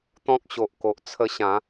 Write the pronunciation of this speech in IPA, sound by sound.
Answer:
t̪ ɔ̃˦ k̚ ɕ o˨ ʔ k o˨ ʔ t͡sʰ ə˧ ɕ ã˨˦

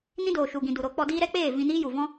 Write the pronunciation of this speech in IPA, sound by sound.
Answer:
n ĩ˦ d oː˨ ʃ u˨ ɡ ĩ˨ d u˨ ɾ o˨˦ k͡p ɔ˧ d iː˦ ɾ ɛ˦ k͡p eː˦˨ v ĩ˧ n iː˦ j u˨ v ɔ̃˦

